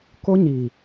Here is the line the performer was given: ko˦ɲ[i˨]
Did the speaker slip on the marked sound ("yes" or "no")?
no